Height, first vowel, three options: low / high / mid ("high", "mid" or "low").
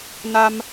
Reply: low